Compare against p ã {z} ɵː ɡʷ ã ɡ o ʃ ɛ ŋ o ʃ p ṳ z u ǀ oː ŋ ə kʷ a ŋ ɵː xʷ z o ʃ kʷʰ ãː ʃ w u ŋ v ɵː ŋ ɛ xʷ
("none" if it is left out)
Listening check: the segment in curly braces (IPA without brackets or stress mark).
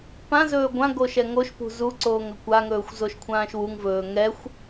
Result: z